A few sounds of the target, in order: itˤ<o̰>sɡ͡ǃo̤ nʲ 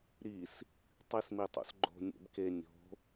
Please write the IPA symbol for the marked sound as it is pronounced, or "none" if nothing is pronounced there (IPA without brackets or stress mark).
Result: o̰